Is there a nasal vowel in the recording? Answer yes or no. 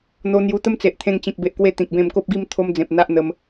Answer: yes